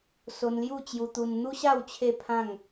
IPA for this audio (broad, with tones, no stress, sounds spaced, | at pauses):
s o˧ n l j u˥˧ t͡ɕ j u˧ t̪ u˧ n n̪ u˦ ɕ a˥˧ w t͡ɕʰ e˥˧ pʰ ã˥˧ ŋ